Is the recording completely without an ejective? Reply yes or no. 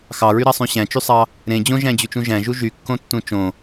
yes